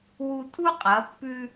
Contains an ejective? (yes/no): yes